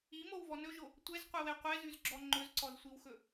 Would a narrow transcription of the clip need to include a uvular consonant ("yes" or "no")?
yes